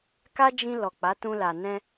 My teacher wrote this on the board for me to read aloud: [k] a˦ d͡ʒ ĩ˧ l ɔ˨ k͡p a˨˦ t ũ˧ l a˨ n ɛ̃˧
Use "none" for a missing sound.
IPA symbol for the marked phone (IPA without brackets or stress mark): k